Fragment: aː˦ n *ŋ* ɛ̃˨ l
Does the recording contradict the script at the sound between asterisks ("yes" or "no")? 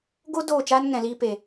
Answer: no